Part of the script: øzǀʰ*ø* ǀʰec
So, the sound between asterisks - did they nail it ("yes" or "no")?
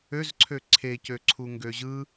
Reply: yes